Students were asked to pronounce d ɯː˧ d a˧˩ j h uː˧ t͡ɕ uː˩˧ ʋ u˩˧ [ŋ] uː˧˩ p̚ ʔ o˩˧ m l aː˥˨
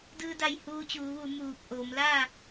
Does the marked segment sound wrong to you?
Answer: yes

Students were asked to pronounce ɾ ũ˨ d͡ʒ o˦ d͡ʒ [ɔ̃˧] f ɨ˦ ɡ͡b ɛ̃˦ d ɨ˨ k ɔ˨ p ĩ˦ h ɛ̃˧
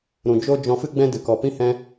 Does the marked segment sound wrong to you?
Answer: no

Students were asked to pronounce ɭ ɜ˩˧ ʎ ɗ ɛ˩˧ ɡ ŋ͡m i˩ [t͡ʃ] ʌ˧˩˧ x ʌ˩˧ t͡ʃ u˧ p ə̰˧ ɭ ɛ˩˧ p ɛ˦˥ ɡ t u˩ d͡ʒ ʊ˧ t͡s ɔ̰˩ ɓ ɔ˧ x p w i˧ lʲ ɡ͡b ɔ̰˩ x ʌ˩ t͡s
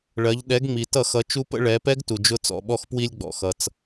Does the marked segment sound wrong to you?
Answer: yes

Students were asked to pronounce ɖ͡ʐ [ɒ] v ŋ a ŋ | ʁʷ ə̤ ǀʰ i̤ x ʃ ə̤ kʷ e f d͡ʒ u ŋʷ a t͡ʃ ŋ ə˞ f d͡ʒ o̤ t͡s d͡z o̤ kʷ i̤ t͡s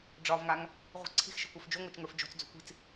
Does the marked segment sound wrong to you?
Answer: no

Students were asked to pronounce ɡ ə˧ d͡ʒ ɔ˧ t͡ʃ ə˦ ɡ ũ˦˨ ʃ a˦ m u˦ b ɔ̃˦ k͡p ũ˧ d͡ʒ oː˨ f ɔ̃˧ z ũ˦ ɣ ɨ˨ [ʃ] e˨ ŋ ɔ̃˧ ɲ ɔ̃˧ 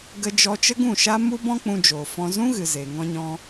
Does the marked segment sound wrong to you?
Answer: yes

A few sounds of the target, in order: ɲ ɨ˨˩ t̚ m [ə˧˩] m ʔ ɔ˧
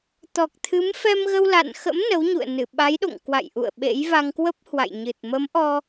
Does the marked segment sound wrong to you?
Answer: yes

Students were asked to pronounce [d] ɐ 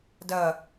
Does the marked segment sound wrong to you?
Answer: no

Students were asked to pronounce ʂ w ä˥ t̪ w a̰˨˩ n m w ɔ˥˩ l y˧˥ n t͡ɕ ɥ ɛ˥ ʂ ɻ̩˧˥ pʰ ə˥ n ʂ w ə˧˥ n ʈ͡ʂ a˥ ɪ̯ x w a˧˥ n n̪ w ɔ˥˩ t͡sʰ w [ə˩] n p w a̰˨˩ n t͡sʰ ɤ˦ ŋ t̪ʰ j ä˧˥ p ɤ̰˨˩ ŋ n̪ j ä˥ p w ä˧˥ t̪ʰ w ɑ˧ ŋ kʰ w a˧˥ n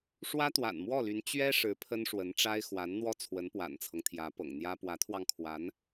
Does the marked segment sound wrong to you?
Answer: yes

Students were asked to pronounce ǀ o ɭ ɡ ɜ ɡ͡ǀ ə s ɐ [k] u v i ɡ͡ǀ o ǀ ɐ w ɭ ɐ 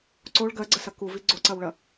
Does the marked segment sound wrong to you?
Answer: no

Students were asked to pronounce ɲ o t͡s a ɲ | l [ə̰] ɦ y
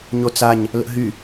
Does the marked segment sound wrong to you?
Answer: no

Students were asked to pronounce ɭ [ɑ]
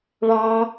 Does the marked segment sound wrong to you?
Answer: no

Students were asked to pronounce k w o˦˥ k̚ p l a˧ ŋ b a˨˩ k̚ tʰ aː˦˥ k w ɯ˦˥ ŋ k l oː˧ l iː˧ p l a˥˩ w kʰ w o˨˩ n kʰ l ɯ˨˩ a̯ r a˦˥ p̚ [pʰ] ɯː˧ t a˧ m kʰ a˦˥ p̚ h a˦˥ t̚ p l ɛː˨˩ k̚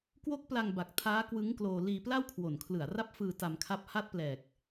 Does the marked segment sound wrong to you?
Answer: yes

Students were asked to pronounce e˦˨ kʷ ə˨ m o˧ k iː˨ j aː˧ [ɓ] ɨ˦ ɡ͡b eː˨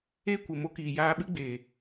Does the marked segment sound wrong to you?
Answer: no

